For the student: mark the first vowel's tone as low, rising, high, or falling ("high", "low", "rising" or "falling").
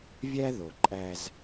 high